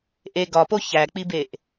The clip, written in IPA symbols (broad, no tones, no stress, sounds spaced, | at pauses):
ʔ e ɡ ɒ p o ç æ k͡p i b e ʔ